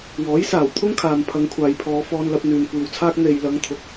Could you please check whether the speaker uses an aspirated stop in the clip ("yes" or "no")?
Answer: yes